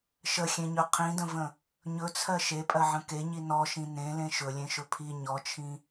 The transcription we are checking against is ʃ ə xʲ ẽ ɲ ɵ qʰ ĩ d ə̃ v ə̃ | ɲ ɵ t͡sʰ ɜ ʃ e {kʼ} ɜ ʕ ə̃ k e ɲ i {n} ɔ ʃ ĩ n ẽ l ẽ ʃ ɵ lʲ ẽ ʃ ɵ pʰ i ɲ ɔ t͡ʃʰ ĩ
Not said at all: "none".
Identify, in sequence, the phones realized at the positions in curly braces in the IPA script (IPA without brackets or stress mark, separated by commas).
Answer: pʼ, n